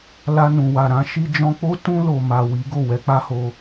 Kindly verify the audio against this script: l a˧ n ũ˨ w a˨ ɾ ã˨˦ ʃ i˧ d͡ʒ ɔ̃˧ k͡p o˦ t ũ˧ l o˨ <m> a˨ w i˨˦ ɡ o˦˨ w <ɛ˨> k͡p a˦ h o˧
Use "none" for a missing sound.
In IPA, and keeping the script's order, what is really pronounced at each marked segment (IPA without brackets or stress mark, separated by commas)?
m, ɛ˧